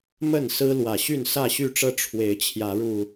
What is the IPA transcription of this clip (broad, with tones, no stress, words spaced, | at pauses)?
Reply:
mə˥˨nsɹ̩˦lwä˨˩ ɕy˥˨nsä˥˨ɕy˥˨ʈ͡ʂɤ˦ ʈ͡ʂʰwe˨˦ɪ̯t͡ɕʰjä˨˦ɻu˨˩